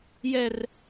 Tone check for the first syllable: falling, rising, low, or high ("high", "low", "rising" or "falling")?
high